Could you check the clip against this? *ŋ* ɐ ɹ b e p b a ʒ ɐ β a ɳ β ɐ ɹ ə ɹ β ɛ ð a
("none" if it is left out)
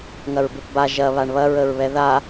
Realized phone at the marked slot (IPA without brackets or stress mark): ŋ